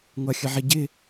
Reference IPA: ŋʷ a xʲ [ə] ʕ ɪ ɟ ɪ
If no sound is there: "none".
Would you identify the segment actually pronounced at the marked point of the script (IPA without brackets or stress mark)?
ə